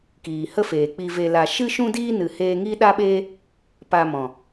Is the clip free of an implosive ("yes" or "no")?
no